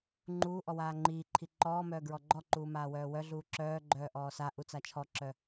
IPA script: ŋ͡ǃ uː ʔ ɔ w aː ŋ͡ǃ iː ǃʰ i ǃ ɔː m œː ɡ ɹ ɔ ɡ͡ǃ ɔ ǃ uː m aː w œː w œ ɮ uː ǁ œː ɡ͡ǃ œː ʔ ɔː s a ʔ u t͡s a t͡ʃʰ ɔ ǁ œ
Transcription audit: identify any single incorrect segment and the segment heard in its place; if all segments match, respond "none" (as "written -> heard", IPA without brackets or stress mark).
none